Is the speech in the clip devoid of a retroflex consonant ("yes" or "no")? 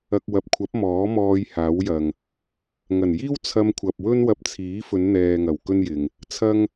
yes